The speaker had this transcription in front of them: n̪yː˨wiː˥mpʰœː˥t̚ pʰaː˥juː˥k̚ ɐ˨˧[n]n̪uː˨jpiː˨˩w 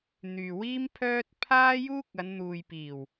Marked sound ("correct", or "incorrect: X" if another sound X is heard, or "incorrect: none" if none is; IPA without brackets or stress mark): correct